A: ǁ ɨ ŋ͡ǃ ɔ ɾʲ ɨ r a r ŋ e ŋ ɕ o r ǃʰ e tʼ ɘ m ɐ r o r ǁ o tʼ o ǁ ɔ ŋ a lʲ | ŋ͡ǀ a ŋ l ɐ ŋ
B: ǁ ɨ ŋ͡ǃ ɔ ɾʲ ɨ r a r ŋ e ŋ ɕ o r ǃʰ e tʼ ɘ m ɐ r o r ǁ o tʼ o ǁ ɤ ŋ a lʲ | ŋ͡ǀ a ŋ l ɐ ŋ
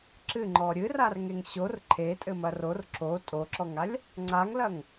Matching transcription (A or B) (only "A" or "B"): A